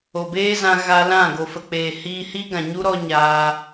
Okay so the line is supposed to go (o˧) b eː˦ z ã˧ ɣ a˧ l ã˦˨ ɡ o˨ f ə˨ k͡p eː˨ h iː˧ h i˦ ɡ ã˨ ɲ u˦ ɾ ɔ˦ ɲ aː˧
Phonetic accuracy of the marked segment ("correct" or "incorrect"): incorrect